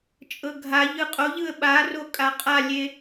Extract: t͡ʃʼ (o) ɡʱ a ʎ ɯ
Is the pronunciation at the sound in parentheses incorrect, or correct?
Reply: incorrect: ɤ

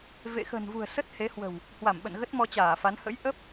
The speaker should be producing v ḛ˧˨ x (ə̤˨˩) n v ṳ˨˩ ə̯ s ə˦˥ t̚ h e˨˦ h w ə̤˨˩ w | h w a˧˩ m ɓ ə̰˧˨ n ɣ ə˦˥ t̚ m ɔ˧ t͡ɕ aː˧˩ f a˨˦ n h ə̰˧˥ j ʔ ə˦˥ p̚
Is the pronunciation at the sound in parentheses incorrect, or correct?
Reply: correct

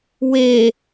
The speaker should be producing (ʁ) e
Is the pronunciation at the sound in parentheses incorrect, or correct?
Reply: incorrect: w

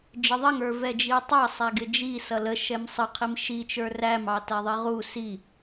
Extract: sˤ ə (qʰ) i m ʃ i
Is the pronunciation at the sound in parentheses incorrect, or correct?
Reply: correct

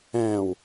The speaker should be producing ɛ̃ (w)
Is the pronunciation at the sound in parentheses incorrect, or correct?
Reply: correct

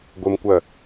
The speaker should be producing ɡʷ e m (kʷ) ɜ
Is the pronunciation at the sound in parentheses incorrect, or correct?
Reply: correct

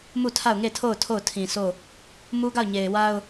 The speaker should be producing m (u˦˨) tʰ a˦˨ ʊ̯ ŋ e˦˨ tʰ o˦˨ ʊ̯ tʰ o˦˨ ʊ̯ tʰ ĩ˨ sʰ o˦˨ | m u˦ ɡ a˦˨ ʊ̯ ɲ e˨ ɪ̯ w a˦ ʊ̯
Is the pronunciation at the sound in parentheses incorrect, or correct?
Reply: correct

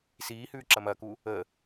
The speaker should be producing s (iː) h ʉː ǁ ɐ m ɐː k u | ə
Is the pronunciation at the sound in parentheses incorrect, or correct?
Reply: correct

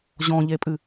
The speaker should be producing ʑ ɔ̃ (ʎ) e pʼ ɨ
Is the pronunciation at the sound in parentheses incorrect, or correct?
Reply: correct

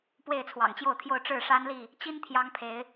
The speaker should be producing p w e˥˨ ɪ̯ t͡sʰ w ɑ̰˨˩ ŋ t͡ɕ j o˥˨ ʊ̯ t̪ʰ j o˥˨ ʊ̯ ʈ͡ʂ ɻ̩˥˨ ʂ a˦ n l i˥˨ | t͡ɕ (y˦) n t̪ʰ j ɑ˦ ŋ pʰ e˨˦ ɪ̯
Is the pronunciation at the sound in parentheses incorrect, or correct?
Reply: incorrect: i˦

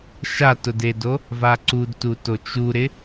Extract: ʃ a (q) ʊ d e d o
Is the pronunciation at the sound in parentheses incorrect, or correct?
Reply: incorrect: t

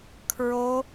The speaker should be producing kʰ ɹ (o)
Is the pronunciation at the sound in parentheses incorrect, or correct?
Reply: correct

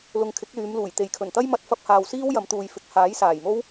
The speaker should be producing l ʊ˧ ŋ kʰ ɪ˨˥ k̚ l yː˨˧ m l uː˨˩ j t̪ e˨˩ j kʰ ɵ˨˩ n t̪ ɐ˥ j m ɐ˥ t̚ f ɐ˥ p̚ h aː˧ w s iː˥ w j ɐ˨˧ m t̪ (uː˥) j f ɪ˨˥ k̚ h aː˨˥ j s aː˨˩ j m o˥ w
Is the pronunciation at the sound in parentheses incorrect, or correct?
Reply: incorrect: uː˨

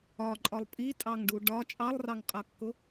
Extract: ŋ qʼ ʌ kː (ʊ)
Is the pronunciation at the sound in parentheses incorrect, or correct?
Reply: correct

